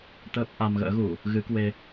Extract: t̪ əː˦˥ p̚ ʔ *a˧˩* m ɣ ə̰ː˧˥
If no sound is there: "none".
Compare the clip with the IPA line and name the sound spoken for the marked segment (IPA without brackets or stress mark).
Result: a˧